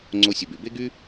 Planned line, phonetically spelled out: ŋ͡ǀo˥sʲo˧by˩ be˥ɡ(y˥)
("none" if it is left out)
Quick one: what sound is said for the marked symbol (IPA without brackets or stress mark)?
y˥